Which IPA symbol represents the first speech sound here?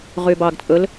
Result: ʁ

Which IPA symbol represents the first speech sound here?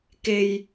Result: k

